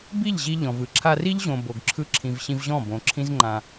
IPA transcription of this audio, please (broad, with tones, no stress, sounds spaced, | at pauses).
b i˦˨ ʎ ʑ i˦ ʎ ɔ̃˨ v ɯ˧ ǁʰ a˧ r i˦ ʎ ʑ õ˨ b o˨ ɡ ǁʰ ɯ˦ ǁʰ ĩ˨ v ɕ ĩ˧ v ʑ ɔ̃˦˨ b õ˨ ǁʰ ĩ˦ z ŋ͡ǃ ã˧